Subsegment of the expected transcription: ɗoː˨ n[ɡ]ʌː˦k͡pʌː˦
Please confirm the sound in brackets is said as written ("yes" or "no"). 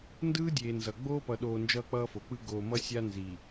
no